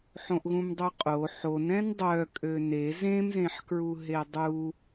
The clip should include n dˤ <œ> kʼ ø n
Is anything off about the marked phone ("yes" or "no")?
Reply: no